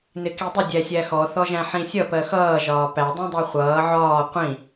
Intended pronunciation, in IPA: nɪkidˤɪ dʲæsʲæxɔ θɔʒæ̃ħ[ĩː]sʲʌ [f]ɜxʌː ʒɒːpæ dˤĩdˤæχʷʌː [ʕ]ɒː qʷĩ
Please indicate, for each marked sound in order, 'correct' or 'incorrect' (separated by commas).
incorrect, incorrect, correct